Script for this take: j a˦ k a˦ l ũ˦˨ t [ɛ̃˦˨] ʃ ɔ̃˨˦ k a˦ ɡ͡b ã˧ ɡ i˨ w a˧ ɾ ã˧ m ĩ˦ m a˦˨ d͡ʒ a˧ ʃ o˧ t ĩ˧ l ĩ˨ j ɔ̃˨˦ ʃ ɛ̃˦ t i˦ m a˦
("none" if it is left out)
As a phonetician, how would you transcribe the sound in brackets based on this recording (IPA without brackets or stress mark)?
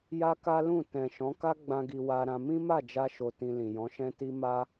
ɛ̃˨